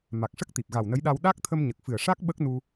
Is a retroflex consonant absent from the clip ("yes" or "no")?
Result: no